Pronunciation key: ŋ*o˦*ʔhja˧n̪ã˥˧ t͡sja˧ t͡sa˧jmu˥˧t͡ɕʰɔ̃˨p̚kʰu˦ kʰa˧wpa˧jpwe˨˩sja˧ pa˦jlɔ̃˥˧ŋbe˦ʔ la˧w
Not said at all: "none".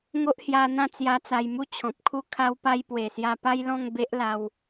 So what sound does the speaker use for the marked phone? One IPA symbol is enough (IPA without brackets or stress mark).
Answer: o˦